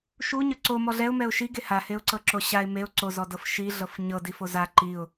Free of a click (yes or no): no